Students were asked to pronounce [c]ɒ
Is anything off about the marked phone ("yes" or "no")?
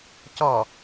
no